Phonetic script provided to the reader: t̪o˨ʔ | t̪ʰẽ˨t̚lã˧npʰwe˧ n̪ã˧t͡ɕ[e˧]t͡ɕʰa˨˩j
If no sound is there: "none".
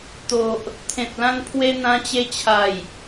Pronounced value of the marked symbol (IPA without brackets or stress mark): e˧